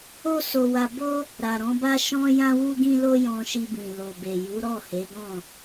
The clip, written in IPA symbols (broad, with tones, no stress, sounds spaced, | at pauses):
o˦ s o˧ w a˧ b o˦ | ɾ a˨ ɾ ɔ̃˨˦ b a˦ ʃ ɔ̃˦ j ã˦ w u˦ ɡ ĩ˦ l o˦ j ɔ̃˧ ʃ i˧ b ĩ˨ l o˨ b e˨ j u˨˦ ɾ ɔ˦˨ h e˨˦ ɡ ɔ̃˦˨